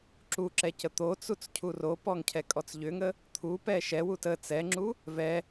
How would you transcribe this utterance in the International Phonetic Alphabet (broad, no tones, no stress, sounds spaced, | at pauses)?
ǁ u ǁ ɛ c ə t̪ o t͡s u t͡s cʰ u r o p ɔ ŋ cʰ ɛ kʼ ɔ t͡s ʎ ʏ ŋ ə | t̪ʰ u p ɛ ʃ ɛ w u t ə t͡s ɛ ŋ͡ǁ u | v ɛ